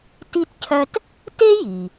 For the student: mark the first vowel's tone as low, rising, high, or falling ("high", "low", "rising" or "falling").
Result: high